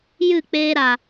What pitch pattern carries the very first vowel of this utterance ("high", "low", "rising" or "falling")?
falling